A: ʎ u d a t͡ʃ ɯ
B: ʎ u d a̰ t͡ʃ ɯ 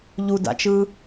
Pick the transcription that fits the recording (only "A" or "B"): B